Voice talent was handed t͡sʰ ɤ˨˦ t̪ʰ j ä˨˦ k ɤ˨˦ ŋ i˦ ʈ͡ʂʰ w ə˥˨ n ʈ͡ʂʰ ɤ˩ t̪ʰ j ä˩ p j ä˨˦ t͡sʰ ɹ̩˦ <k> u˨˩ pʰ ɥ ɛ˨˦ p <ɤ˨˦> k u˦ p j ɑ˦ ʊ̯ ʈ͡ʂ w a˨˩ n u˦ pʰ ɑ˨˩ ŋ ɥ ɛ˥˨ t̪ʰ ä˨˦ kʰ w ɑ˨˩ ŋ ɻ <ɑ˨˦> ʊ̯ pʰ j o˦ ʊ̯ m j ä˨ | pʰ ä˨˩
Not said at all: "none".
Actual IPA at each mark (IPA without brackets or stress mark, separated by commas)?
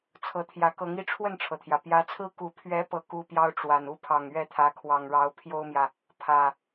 k, ɤ˦, ɑ˨˦